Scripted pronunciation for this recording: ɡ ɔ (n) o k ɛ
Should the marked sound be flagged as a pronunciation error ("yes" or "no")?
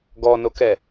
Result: no